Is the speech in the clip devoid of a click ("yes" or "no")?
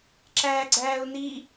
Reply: no